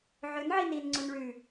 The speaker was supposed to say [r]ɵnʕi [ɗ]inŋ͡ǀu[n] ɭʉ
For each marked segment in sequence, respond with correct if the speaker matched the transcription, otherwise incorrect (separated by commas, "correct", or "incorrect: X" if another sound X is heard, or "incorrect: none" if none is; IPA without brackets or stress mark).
incorrect: ʕ, incorrect: n, correct